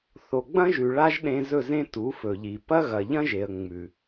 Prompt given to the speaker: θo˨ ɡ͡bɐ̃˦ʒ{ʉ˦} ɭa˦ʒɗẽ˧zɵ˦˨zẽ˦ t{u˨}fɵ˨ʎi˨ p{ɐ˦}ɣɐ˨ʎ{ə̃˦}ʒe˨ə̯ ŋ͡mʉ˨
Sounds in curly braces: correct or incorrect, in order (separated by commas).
incorrect, incorrect, correct, incorrect